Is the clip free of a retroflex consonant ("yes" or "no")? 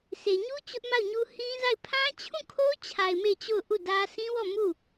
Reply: yes